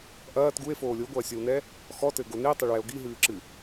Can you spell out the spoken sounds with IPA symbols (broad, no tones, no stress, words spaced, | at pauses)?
ʔɐːt ɡue̯foː lʲoɡʷɐːsʲɔwnɛ | xɔtɘɡo netˤeɭwɛo̯ ɡiɦɨːǁɨ